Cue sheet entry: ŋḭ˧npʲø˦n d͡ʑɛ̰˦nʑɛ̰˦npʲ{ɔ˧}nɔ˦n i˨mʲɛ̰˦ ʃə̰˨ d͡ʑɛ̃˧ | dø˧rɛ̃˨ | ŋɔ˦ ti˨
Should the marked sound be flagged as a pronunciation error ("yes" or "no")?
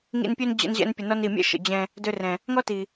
yes